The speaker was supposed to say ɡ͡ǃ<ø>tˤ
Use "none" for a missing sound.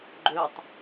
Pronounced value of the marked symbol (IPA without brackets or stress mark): ø